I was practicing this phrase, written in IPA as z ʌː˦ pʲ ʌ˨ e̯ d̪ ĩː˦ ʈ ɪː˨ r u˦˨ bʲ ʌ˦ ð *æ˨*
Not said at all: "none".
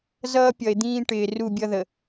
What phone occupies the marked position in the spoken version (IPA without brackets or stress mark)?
ə˨